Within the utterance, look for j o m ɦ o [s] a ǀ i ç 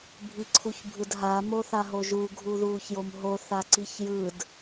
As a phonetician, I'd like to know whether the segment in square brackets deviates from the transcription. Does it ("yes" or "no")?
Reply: yes